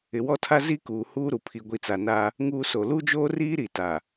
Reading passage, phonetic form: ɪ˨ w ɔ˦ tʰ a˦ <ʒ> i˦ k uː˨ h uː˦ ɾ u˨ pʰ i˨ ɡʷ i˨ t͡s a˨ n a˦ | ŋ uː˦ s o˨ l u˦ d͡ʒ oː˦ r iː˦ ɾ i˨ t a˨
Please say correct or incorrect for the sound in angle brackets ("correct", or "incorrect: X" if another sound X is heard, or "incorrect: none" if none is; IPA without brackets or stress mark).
incorrect: z